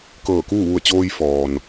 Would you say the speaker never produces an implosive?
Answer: yes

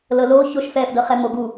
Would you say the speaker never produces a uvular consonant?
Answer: no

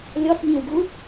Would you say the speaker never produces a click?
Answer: yes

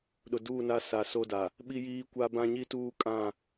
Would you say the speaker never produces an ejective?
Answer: no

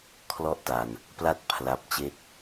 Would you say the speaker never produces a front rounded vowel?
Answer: yes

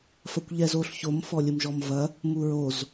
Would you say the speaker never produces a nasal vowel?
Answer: yes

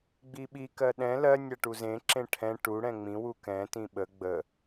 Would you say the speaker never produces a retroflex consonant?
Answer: no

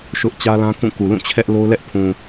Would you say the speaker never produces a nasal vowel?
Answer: no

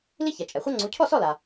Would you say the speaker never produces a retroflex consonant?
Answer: yes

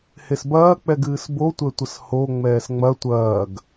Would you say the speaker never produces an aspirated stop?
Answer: yes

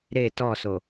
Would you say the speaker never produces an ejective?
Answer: yes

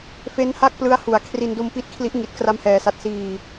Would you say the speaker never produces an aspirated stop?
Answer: no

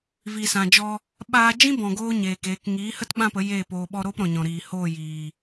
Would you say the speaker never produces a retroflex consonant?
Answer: yes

